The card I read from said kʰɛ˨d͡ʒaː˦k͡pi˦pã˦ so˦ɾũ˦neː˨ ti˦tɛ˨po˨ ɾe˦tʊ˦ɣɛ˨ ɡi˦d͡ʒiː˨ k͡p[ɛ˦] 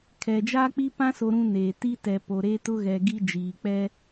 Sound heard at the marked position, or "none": ɛ˦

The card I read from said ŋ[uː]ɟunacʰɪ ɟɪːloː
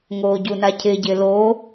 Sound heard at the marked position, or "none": oː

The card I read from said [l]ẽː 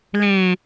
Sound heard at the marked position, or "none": l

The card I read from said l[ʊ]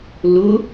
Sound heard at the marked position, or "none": ʊ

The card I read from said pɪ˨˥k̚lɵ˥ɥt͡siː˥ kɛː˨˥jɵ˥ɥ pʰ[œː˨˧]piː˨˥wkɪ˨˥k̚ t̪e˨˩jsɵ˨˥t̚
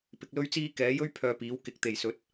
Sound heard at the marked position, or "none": œː˧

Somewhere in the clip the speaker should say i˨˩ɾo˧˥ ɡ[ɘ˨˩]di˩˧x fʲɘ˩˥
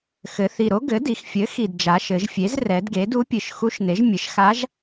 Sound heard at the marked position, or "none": ɘ˩˥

